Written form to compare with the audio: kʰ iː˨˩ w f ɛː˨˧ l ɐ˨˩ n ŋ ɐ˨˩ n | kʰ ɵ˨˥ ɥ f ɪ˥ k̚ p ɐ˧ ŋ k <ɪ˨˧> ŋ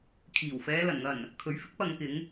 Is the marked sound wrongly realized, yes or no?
no